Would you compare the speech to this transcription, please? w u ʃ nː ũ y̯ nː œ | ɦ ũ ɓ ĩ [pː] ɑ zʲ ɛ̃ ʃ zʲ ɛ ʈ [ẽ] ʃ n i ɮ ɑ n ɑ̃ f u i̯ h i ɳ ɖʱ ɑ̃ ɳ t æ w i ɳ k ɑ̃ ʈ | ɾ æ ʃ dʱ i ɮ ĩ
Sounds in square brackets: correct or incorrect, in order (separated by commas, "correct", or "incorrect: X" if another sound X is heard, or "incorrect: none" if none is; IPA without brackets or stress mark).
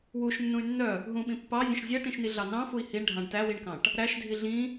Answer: correct, incorrect: ĩ